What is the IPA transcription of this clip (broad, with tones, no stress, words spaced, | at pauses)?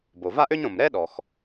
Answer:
bo˩va˥ʔø˥ɲɾõ˩m ɾɛ˥ɗɔ˩x